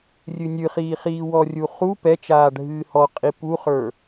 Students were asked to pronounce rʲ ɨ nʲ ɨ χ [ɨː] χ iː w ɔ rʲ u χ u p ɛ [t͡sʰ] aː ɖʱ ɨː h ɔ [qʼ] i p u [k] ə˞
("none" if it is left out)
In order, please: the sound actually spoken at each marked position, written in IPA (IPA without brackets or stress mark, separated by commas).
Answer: iː, t͡ʃ, qʼ, χ